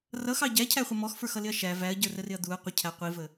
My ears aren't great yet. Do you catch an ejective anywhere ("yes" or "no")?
no